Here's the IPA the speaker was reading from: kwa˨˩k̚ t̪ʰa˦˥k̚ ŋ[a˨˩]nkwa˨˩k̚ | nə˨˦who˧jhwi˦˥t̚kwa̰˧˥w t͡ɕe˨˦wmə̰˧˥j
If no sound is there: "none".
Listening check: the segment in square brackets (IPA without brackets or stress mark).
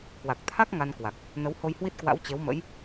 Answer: a˧